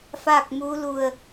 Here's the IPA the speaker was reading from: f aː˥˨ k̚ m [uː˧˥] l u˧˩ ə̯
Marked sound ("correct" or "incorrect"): correct